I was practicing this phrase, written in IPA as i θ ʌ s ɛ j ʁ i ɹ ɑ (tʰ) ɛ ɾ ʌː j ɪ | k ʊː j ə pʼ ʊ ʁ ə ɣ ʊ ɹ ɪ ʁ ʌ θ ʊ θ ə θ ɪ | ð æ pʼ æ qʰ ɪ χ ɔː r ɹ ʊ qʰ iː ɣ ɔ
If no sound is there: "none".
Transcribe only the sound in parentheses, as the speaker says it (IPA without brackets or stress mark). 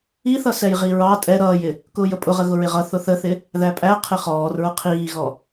tʼ